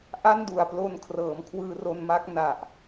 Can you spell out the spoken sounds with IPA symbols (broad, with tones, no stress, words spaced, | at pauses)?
ʔa˥˩ndu˨˩a̯plo˧n kʰrɤː˩˦mkʰwɯː˧ro˧nma˦˥k̚ na˨˩ʔ